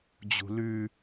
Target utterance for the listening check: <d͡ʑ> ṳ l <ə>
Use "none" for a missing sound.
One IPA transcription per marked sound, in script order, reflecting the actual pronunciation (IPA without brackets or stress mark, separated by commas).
d͡ʑ, ʉ